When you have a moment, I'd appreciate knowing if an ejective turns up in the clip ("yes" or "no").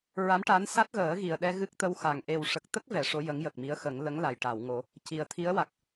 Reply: no